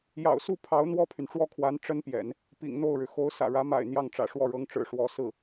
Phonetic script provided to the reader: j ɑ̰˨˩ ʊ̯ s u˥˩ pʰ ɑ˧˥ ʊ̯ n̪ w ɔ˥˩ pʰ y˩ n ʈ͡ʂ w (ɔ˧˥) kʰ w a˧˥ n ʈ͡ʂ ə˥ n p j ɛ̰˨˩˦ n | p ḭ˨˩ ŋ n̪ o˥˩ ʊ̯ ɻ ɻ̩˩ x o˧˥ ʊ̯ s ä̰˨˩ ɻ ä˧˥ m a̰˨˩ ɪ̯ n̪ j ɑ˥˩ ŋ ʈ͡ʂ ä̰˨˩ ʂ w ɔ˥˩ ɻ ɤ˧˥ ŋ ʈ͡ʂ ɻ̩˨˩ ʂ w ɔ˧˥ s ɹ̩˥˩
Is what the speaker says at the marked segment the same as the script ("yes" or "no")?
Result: no